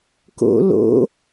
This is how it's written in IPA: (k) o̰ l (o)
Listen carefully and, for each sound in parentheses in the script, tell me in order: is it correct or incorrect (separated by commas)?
correct, incorrect